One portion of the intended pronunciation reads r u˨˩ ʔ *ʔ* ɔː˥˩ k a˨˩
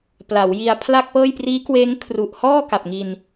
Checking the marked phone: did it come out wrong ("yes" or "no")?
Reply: yes